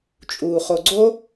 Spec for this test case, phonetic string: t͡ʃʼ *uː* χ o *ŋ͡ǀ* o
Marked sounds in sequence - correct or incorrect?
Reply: correct, incorrect

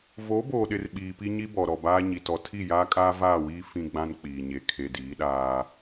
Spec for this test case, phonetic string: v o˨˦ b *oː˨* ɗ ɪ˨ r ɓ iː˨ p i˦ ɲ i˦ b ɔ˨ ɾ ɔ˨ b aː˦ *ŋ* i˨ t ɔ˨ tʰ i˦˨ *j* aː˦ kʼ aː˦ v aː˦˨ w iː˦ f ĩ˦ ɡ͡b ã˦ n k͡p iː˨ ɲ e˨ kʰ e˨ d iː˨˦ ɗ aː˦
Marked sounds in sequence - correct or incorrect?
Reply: correct, incorrect, correct

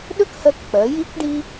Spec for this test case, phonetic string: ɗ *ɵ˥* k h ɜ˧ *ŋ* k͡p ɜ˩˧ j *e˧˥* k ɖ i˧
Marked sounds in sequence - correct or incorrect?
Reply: correct, incorrect, incorrect

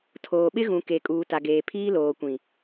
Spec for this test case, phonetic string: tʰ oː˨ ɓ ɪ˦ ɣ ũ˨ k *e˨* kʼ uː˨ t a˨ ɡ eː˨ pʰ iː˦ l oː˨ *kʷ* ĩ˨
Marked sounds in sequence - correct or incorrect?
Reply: correct, correct

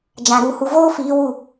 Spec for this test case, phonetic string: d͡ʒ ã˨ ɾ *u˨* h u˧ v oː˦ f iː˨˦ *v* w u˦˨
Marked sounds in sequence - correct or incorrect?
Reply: incorrect, incorrect

